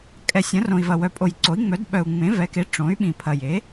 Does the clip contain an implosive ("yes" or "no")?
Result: yes